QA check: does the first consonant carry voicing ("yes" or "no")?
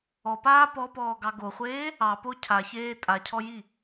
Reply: no